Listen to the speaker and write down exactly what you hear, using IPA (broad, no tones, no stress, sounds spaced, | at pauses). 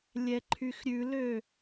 lʲ ɛ ǃʰ y x ɾʲ ʉ l ø